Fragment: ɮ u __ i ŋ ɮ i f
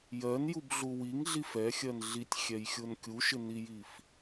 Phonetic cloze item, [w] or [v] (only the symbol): w